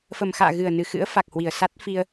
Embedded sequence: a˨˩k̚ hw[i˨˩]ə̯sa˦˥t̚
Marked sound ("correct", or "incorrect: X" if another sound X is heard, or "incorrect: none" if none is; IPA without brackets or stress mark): correct